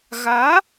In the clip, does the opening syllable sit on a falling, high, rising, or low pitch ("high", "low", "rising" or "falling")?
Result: rising